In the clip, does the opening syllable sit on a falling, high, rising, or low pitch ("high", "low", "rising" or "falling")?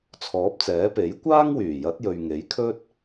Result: rising